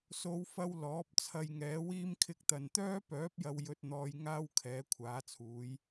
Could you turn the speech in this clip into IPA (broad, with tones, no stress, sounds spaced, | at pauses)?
s o˨˧ w f ɐ˧ w l ɔː˨˥ p̚ t͡sʰ ɐ˧ j ŋ ɛː˨˥ w iː˥ m kʰ ɪ˧ k̚ t̪ ɐ˨ n t̪ œː˥ p œː˨˥ p̚ j ɐ˨ w j ɵ˨ t̚ n̪ ɔː˨ j ŋ aː˥ w kʰ ɛː˨˥ kʷʰ aː˨˥ t͡sʰ uː˨˥ j